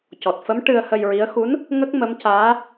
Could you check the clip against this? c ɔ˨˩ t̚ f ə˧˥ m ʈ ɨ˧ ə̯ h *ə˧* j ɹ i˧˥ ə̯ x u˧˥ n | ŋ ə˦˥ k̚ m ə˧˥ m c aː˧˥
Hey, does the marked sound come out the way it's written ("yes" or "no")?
yes